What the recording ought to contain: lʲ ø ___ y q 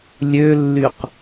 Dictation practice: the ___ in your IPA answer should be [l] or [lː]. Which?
lː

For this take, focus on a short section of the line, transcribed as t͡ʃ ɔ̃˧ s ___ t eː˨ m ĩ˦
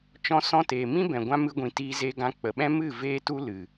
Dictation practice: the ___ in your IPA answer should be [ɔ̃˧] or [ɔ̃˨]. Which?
ɔ̃˧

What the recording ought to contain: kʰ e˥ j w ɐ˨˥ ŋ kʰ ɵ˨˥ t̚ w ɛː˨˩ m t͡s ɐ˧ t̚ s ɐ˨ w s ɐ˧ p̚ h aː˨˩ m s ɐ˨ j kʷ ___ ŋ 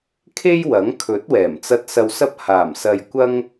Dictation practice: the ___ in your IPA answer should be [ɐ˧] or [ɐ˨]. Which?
ɐ˧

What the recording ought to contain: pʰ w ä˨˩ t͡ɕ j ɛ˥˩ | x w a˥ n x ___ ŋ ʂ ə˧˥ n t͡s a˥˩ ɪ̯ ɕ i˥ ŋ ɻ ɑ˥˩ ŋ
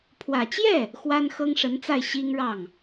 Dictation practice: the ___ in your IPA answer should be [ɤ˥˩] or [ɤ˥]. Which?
ɤ˥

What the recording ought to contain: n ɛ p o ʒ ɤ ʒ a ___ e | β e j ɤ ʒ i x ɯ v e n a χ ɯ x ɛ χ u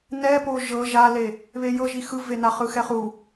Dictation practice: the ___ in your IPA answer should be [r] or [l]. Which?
l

